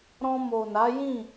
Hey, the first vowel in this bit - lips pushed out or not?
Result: yes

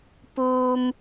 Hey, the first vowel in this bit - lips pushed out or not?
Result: yes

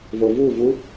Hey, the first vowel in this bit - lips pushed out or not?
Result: yes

